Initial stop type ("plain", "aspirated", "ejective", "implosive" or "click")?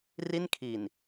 aspirated